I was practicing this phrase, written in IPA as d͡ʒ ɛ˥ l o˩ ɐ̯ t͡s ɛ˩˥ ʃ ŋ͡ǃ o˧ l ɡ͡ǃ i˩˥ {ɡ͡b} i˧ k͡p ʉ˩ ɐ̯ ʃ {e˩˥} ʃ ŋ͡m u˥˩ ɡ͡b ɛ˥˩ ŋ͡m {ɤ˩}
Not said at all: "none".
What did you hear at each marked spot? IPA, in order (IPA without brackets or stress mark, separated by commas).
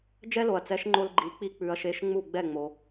k͡p, e˩˥, o˩